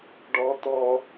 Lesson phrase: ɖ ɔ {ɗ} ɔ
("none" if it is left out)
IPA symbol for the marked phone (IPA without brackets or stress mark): t̪